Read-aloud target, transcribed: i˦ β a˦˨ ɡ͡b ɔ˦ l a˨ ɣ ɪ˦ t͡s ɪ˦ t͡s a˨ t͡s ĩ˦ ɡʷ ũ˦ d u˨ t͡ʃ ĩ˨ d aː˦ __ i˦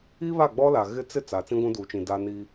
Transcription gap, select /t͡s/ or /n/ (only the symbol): n